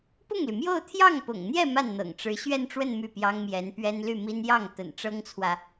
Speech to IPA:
p ʊ˥˩ ŋ l y˩ m j o˥˧ ʊ̯ t̪ʰ j ɑ˥˩ ŋ p ʊ̰˨˩ ŋ n̪ j ɛ˥˧ m a˥˩ n n̪ ɤ̰˨˩ ŋ ʈ͡ʂ ɻ̩˧˥ ɕ ɥ ɛ˥˧ n ʈ͡ʂ w ə˥˧ n m y˥˩ p j ɑ˥ ŋ m j ɛ˧˥ n p ɥ ɛ˥ n l y˥˩ m i˥ n j ɑ˥˩ ŋ t̪ ə̰˨˩ n ʈ͡ʂ ɤ˥ ŋ t͡sʰ w ä˨

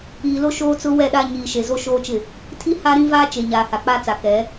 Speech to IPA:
iː˨ l o˦ ʃ oː˦ t͡s ʊ˦ w ɛ˦˨ ɗ a˦ ɲ iː˨ ʃ e˨ z o˦ ʃ oː˦ t͡ʃ ɪ˦˨ | tʰ i˦ h a˦ ɾ ĩ˦ v aː˦ t͡ʃ e˨ ɲ aː˨ h a˨ k͡p a˦ t͡s a˨ k ɛ˨˦

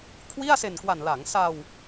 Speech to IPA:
kʰ w i˥˩ a̯ s e˨˩ n k w a˨˩ n l a˩˦ ŋ s a˧ w

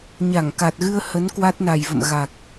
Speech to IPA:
ɲ a˧˩ ŋ k a˨˩ t̚ ɣ ɨ˧ ə̯ h ə˨˦ n k w a˦˥ t̚ n a˨˩ j v ə̰˧˨ m ɣ a˨˩ k̚

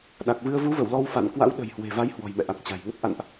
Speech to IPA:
ɗ a˨˩ k̚ v ɨ˧ ə̯ v u˨˦ v ə˧˩ w l ɔ˧ w f a̰˧˨ n k w a̰˧˥ w ɗ ə̤˨˩ j h w e̤˨˩ v a˨˦ j h w ɔ̤˨˩ j m ɛ̰˧˨ ʔ a˨˩ k̚ t͡ɕ a̤˨˩ j ŋ ə˦˥ t̚ ʔ a̰˧˨ n ʔ

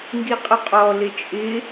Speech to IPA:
ŋ ɡ i qʼ ʊ qʼ ɔ l ɪ t͡ʃʼ ɪ

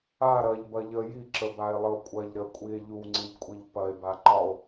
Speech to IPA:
a ɾ ɐ ʎ b ɐ ʎ ə j i ǁ ə b a e̯ lˠ ə o̯ kʷʼ ɐ ʎ ɾ ə kʷʼ i e̯ ʎ u ŋ͡ǀ i ʎ kʷʼ i ʎ p ɐ e̯ b a ǃ ɒ o̯

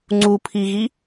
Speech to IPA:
ŋ͡ǀ u pʰ i ɣ i

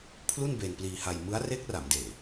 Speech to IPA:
pʰ l u˥˩ n b e˧ n p l iː˧ h a˧ j m ɯ˦˥ a̯ r e˦˥ k̚ r a˩˦ m d eː˨˩

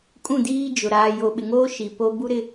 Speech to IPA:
kʼ ũ˦˨ d iː˦ d͡ʒ ʊ˨ ɾ aː˨ j o˨ ɓ ɪ˨ ŋ oː˦ ʃ i˨ p o˦ b u˦ ɾ ɪ˦

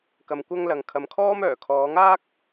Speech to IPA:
k ɐ˨ m kʷ ɐ˧ ŋ l ɐ˨ ŋ kʰ ɐ˨ m kʰ ɔː˥ m œː˨˩ kʰ ɔː˨˧ ŋ aː˥ k̚

